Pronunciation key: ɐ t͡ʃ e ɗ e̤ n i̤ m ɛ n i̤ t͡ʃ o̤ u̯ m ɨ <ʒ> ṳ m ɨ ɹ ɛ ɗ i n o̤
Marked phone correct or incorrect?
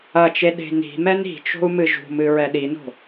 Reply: correct